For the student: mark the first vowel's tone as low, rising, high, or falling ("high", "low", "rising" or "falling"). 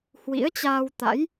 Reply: rising